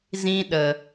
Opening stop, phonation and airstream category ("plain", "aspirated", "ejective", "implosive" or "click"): implosive